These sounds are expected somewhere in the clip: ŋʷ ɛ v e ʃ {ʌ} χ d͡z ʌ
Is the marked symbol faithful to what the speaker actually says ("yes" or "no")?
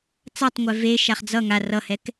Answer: no